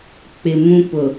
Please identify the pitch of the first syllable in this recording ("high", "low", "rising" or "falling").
low